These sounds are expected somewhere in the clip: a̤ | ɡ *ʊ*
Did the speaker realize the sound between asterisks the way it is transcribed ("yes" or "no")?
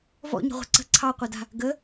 no